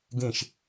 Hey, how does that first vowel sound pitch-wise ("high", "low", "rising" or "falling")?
falling